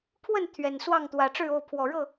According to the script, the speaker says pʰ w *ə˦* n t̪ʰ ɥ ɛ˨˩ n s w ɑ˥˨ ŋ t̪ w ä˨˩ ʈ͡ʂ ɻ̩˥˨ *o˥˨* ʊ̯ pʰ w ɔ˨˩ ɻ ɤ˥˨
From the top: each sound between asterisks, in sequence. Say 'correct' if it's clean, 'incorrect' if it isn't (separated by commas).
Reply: incorrect, correct